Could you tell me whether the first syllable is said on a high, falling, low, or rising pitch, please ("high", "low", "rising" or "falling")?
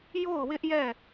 falling